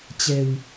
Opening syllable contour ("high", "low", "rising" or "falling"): low